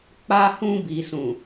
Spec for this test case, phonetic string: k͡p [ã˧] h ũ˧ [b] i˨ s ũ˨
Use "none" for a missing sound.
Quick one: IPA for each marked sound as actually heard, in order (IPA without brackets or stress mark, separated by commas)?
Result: a˧, b